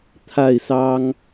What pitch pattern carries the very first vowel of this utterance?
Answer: falling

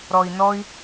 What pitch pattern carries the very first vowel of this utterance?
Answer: low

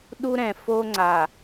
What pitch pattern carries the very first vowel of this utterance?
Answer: high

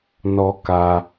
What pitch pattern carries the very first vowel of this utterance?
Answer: high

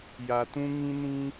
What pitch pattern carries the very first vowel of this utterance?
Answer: low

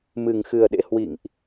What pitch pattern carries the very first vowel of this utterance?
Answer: low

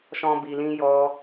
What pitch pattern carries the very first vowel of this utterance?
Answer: high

